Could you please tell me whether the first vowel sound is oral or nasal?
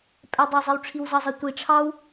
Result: oral